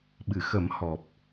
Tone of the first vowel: low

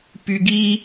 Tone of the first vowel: low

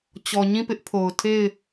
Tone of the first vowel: low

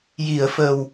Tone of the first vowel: low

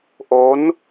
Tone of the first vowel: rising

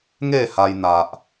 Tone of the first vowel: falling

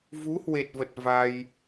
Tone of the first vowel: rising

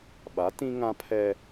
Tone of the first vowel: rising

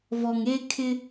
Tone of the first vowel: low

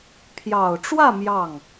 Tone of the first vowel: low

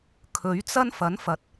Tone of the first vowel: rising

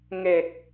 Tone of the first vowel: low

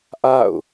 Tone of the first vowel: falling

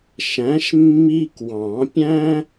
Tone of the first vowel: rising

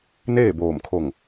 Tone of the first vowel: falling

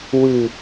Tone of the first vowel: low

